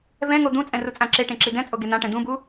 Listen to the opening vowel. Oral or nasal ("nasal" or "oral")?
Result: nasal